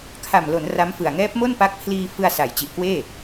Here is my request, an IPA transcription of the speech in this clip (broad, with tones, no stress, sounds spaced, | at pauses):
kʰ a˨˩ m l o˩˦ n r a˦˥ m f ɯ˨˩ a̯ ŋ ɛː˦˥ p̚ m o˥˩ n p a˦˥ k̚ pʰ l iː˧ f ɯ˧ a̯ s a˩˦ j t͡ɕ i˨˩ ʔ k w eː˥˩